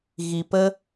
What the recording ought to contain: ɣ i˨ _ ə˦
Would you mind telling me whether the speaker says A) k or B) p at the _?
B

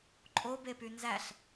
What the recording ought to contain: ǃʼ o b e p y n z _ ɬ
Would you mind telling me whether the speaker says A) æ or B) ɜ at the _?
A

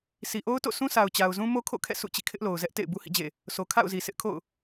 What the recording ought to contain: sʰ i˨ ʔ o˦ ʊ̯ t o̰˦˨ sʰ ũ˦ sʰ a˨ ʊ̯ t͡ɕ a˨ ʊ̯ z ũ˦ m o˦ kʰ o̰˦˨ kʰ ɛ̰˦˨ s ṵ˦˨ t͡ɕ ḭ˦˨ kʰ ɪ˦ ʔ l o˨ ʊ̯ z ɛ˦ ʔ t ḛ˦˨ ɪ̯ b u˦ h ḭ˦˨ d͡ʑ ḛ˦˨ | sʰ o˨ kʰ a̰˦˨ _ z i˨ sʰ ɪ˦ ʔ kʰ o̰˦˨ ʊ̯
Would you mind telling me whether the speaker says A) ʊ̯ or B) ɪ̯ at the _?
A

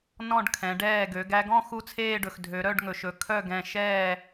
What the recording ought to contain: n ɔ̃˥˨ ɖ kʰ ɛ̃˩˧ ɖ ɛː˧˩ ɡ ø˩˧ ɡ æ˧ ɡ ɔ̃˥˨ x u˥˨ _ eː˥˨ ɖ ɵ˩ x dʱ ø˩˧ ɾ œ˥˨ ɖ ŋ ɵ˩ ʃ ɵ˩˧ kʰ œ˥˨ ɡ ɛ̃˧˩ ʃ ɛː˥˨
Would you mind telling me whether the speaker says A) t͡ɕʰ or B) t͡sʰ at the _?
B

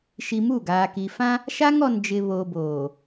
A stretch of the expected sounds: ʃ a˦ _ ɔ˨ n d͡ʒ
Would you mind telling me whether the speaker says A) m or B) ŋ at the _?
B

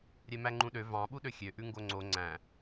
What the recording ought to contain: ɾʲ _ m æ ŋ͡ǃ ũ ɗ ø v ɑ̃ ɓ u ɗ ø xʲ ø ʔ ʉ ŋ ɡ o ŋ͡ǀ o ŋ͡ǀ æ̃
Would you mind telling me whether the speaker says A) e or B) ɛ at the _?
B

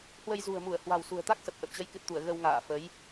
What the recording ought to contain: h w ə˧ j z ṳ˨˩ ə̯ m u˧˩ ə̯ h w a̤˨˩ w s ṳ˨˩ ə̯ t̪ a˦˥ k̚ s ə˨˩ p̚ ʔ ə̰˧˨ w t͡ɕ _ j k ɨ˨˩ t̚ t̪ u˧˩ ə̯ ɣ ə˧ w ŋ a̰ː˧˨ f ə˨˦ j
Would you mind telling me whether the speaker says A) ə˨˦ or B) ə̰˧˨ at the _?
A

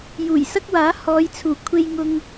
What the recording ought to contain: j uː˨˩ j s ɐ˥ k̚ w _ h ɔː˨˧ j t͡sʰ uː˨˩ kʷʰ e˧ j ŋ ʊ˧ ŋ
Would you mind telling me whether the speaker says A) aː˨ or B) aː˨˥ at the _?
B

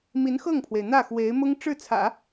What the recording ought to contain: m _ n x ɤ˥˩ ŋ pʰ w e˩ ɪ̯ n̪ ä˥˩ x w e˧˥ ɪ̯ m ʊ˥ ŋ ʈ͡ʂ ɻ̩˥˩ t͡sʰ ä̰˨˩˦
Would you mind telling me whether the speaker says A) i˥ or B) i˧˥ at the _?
B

